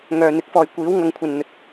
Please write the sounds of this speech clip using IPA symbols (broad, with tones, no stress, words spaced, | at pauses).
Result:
ŋœː˨n̪ɪ˨˥k̚ fɔː˨jkʷiː˨˥wŋɐ˨˧ŋkʷʰɐ˨n n̪ɵ˨t̚